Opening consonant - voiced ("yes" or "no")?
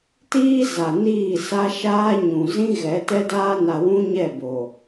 no